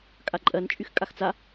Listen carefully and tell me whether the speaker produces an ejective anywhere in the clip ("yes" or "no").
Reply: yes